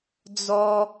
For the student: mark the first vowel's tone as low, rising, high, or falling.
high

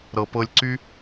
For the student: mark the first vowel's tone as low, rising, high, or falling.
low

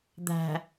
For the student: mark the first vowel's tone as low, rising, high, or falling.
low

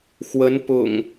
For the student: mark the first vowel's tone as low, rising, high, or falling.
rising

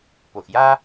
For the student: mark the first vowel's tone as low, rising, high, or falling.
low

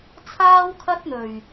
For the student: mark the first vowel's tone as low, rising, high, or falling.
high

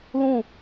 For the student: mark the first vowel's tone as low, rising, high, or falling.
falling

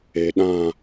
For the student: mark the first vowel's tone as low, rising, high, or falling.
low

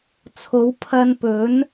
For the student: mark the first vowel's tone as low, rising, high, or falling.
rising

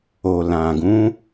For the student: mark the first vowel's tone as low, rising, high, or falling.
low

